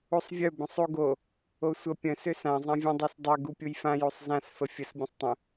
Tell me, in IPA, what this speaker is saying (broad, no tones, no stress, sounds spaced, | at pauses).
u sˤ vʲ œ b ə̃ sˤ u ɡ o | o sʷ ə pʲ ə̃ s ø s ã zˤ ã vʲ ə̃ dˤ ø s dˤ ø ɡ u pʲ u j f ã j u sˤ z ã s f ə fʲ ə s bʲ ə̃ sˤ tˤ ə̃